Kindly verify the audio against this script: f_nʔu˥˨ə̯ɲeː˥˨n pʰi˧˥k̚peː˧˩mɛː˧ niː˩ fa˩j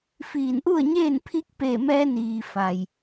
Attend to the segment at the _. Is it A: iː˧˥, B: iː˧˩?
B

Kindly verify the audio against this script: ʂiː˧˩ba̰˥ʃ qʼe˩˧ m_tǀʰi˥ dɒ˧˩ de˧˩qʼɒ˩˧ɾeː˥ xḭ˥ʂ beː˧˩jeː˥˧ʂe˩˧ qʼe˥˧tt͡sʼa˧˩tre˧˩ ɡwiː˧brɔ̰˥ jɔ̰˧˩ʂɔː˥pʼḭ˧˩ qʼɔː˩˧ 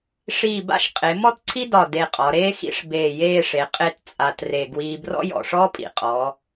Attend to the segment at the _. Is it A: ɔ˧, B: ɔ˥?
B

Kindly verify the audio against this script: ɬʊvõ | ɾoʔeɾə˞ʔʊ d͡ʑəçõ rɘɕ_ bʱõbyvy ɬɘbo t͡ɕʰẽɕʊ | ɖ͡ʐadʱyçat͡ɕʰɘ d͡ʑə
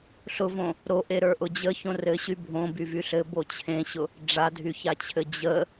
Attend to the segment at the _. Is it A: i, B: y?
B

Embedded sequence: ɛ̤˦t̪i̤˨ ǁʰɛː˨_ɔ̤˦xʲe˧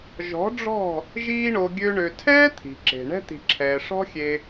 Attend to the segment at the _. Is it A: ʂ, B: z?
A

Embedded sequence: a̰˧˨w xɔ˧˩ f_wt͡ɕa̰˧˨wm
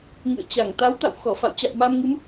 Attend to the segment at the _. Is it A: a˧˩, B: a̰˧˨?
B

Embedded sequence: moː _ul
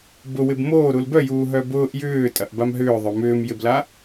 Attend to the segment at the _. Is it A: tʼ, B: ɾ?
B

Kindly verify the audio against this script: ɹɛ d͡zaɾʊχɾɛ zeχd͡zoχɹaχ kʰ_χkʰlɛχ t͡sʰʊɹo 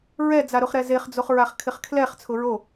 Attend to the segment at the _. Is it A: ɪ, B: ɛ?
A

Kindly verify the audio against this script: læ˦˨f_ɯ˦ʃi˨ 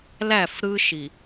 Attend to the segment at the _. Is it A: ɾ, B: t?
A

